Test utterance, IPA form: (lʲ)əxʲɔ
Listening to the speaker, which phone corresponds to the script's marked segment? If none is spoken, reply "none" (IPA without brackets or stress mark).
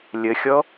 lʲ